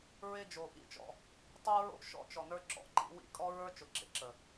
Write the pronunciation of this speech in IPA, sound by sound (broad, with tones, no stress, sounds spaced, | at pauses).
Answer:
ɹ e˦ d͡ʒ o˨ ʔ ḭ˦ t͡ʃ ɔ̰˦ | tˤ o˦ ɹ o̰˦ ʃ ɔ̰˦ t͡ʃ ɔ˨ n ə˞˦ ǁ ɔ̰˨ ǃ ḭ˦ w ḭ˦ kʼ ɔ˦ ɹ ə˞˦ t͡ʃ ʊ˨ ǁ ḛ˨ ǁ ə˨